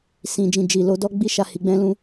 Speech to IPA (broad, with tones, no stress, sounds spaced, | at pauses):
s ĩ˧ d͡ʒ ĩ˧ d͡ʒ i˨ l o˧ d ɔ˦ ɡ͡b i˦ ʃ a˧ h i˧ ɡ͡b ɛ̃˦ l ũ˦